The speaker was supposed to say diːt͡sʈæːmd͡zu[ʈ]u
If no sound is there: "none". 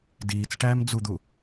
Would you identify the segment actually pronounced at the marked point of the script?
d̪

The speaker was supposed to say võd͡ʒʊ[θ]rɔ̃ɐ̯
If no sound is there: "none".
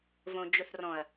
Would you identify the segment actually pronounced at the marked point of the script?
θ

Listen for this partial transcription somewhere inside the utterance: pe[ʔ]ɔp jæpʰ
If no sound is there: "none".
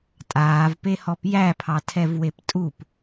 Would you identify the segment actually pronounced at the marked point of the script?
h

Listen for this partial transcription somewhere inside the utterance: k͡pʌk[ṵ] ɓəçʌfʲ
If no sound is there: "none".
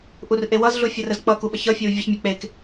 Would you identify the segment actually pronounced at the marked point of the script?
u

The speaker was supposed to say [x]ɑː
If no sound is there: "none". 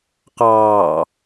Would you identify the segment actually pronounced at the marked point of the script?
q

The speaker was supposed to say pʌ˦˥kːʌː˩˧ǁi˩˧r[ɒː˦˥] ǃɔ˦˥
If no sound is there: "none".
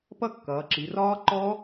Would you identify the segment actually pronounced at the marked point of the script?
ɒː˦˥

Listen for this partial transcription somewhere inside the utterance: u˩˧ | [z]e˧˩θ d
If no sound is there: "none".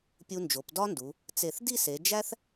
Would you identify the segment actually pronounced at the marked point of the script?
t͡s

